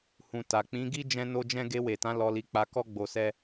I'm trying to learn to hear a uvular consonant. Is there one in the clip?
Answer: no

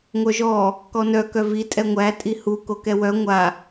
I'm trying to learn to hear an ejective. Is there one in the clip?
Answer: yes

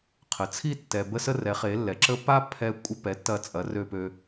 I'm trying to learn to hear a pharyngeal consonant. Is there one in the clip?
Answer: no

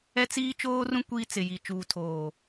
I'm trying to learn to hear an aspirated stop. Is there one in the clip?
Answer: yes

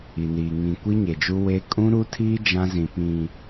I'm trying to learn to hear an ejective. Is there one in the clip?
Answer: yes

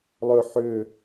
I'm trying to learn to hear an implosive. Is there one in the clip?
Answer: no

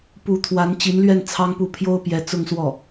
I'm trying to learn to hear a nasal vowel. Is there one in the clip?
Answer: no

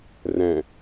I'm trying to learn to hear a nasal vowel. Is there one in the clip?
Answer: yes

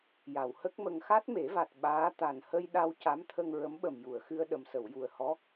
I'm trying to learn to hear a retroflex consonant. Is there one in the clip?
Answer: no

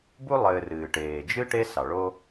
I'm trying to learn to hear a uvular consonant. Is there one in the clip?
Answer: no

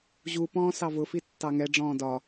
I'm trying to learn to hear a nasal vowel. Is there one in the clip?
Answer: yes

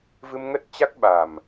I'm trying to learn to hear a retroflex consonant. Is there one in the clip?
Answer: no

